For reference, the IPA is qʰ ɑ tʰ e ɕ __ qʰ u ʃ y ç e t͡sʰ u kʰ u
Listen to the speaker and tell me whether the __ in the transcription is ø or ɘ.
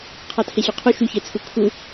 ø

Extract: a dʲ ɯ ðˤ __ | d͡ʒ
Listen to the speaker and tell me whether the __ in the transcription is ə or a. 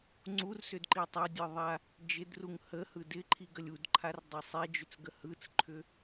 a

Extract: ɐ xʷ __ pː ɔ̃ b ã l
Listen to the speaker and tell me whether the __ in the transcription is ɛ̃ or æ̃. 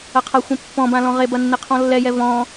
ɛ̃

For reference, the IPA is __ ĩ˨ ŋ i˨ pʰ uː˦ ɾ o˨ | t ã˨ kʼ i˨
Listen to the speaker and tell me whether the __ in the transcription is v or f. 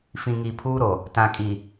f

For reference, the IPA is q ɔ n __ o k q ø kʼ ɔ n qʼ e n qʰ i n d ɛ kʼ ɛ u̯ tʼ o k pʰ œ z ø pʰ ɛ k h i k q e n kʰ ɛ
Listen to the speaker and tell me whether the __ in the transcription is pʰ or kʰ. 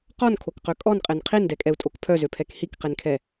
kʰ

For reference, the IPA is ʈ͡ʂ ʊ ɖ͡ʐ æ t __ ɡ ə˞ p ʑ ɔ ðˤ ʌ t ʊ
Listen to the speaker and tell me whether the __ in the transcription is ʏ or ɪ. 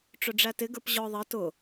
ɪ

